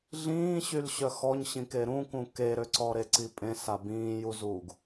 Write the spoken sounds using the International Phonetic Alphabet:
ɮ ĩː ɕ y l ɕ œ x ɔ ɲ ɕ ĩ k e ɾ ũ k ũ k e ɾ ø ǀ ɔ ɾ e ǀ i pʼ ẽ s a b ĩː j u z uː ɡ

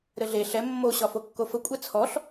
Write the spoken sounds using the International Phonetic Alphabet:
ɾ ɘ ɮ e ɬ ɛ mː o ɕ ɒ f o kː o f ə kʷʼ ɛ t͡sʰ ɔ ɬ

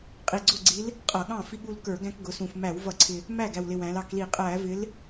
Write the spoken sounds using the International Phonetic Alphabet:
qʼ i˨˩ ɡ͡ǀ ʊ˥˩ ɡ͡ǀ i˨˥ l | qʼ ʌ˧˩˧ ɠ ɑ̃˥˩ f i˦ ɠ u˦ l k ə˞˧˩˧ ɡ æ̃˦ k ɡ ʊ˩˧ s ũ˨˩ f m æ˧˩˧ w v ʌ˧˩˧ ǀʰ ɪ˨˩ | m æ˥˩ ɡ æ˨˩ w l ɪ˨˩ w æ̃˩˧ l ɑ˩˧ k l i˧˩˧ qʼ æ˧˩˧ v ɪ˨˥ l

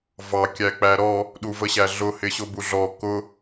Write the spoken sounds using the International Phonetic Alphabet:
v ɑ kʲ æ k͡p æ ɾ ɔ | ɗ u v ə ɕ æ ɮ ʊ h ɪ ɕ ʊ b u ɮ ɔ k ʊ

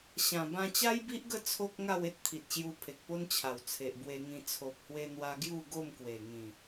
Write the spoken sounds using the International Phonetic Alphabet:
ɕ ã˨˩ b ã˧ t͡ɕ a˦ j b i˦ ʔ ɡ ə˥˧ t͡sʰ o˦ k̚ ŋ a˥˧ w e˦ t̚ t̪ʰ i˨ t̚ ɕ j u˧ pʰ e˨ k̚ p o˦ n t͡ɕʰ a˨˩ w t͡sʰ e˨ ʔ b w e˧ ŋ ĩ˧ t͡sʰ o˨ p̚ h w e˧ n̪ w a˧ ɡ j u˥˧ ɡ o˥˧ m k w e˨˩ ŋ ĩ˨˩

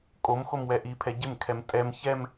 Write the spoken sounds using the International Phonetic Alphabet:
kʼ o m x o m w ɛ ʔ i pʰ ɛ ɟ ɪ m kʰ ɛ m tʼ ɛ m ç ɛ m

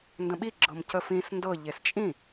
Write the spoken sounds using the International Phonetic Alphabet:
n d ə̃ ɓ i ɡ͡ǁ ɤ m c ə f ĩ s n d ɤ ʎ e s t͡ʃʼ ĩ

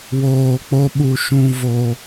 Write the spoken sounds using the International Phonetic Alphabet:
w oː˨ k͡p o˧ ɓ u˨ ʃ ũ˨ v o˨

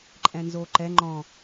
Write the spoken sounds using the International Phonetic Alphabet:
ǃʼ ɛ̃ n z o ǃ ɛ ŋ͡ǃ ɔ̃

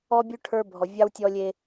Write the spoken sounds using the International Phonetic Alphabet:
ɔ˦ bʲ ʉ˦ ʈʰ ə˞˦ bʱ ɔ˨ vʲ ɑ˦ w tʲ ɔ˦ lʲ e˦

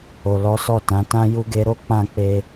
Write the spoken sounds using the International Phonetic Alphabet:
o˨ l ɔ˨˦ s ɔ˦˨ t ã˨˦ t ã˦ j u˦ ɡ e˧ ɾ o˦ k͡p ã˦˨ k͡p e˧

